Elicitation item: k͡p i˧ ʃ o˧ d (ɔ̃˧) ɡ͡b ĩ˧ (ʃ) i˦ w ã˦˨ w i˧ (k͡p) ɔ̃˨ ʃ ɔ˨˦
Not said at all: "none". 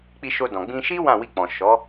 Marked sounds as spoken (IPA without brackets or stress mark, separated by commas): ɔ̃˨, ʃ, k͡p